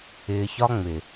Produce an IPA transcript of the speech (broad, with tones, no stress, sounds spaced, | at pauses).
ɪː˨ ç ɒ˦ ŋ͡m ɪ˨